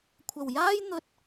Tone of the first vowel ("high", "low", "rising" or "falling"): low